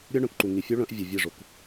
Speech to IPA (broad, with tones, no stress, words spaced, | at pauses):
ɾʲœ˦ɳœ̃˨kǃu˨ ŋi˨fʲu˦ ɭœ̃˦ʔ vʲɘ˨vʲɛ˦˨ʐo˨k